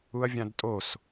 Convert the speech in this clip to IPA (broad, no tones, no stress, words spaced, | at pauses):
uɐ̯vʲãdtʼos